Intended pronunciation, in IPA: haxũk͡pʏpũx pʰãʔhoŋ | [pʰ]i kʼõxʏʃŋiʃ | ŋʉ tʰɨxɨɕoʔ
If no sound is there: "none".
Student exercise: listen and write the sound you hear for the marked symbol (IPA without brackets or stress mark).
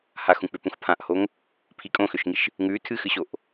pʰ